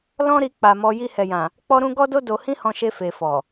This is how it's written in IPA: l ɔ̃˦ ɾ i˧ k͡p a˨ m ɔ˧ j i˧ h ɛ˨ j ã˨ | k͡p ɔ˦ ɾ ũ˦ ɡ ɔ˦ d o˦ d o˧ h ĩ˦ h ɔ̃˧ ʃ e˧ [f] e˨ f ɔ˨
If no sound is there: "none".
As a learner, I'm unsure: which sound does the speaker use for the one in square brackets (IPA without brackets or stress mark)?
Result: f